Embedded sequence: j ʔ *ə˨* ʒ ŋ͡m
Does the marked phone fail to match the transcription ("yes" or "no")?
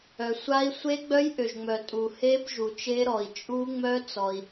yes